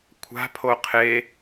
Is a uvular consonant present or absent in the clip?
present